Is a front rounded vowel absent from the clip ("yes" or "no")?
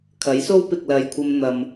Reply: yes